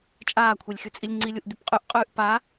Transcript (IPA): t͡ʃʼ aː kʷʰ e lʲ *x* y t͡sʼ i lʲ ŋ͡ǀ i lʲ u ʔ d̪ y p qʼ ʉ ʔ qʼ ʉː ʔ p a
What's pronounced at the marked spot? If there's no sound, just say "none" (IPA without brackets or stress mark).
x